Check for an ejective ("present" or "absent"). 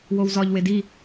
absent